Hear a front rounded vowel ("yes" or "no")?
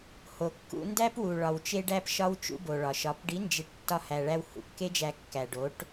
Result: no